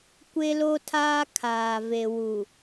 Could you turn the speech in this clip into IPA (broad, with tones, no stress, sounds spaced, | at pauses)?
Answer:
kʷ e˦ l o˦ tʰ aː˦ kʰ aː˨ v e˨ w u˨